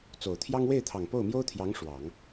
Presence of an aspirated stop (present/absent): present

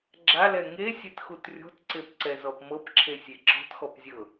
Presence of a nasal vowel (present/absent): absent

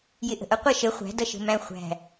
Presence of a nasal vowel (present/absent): present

